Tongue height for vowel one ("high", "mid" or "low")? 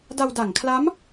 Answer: low